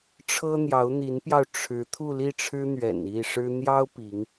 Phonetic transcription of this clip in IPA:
ʈ͡ʂʰɤ˥n̪jɑ˧˥ʊ̯n̪i˧˥npjɑ˧ʊ̯ ʈ͡ʂʰɻ̩˧˥ t̪ʰu˥˧li˥˩ʈ͡ʂʰɻ̩˥n̪ɥɛ̰˨˩n i˥˩ʂɻ̩˥ n̪jɑ˥ʊ̯ pi˧˥ŋ

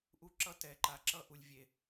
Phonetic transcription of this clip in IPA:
ʔu˦ǁʌ˦tɛ˨ǃa˨ ǁʌ˦ ʔu˨lʲvʲe˨

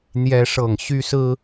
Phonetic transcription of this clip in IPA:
n̪jɛ˦ʂɤ˥˨ŋ ɕy˦sɹ̩˦

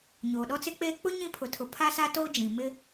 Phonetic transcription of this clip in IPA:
ɲoː˨ɗɔ˦t͡sɪ˦k͡peː˦ k͡pʊ˦ ɲĩ˦pʰʊ˨tʰʊ˨ pʰa˦sa˦ to˦d͡ʒĩ˨mɪ˦

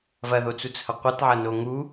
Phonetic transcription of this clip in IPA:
vɐðot͡sut͡shɐ qʷɐtʕɐno ŋu

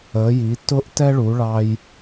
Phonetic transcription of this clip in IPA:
əː˨˥ji˨˥ tʊ˥ʔtɛ˥ ɭu˨˥ɭɑ˥j

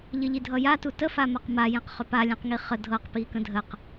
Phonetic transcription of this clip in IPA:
ʎəʎidʱʌja tutə famaqma jẽqχʏpa lʲẽqŋiχə dʱɤq pikə̃dʱəq

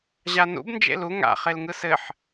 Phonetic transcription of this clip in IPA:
ʑanṵb nd͡ʒḛlu ŋa̰ χelŋɯsɘħ

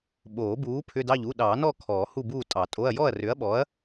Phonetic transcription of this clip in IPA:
ɓoː˨˩˦buː˨˥ pʰʏ˧˥˧dɑ˥˨ʎu˧˥˧ ɗɑː˨˩˦nɔ˥˨ kʰɔː˨˩˦hu˥˨buː˥˨ tʼɑ˨˩˦tʼo˧˥˧ɐ̯ jɔ˥˨ɐ̯rʏ˨˥ɐ̯ɓɔ˨˥ɐ̯

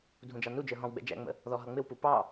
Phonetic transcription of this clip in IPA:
dʱũd͡ʒɑnud͡ʒə˞ ɦɔ̃wɡ͡bɛ̰ d͡ʒæ̰ŋ͡mə̰ | ðɔɦʌŋ͡mɪwpu pɑ

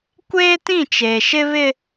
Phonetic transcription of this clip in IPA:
kʷeː˦tĩ˦˨t͡ʃeː˨ ʃɪ˦βɪ˦

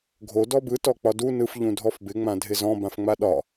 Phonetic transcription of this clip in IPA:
ɡʱo dɔbɯ tɔk͡pɒdu nɯf ʎũdʱɔfbɪ ŋ͡mãdʱɪzɔ̃ bãfŋ͡maɗɒ

